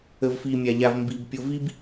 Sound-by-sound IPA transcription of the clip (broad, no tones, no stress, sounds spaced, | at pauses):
ə v f i mʲ a ʎ a v m b i b pʲ o v i b